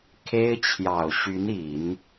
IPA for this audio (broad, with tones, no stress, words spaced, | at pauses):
kʰe˥ɪ̯ t͡ɕʰjɑ˨˩ʊ̯ ɕy˧˥ni˨˩˦n